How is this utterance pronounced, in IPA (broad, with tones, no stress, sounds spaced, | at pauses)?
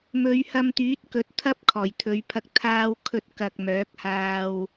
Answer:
m ɵ˨˧ ɥ h ɐ˧ m t̪ yː˨˥ t̚ k ɵ˨˥ t̚ t̪ʰ ɐ˥ p̚ kʰ ɔː˨˩ j t̪ʰ ɵ˨˧ ɥ pʰ ɐ˧ k̚ t̪ʰ aː˥ w kʰ ɵ˧ t̚ k ɐ˨ k̚ m œː˨˥ k̚ h aː˧ w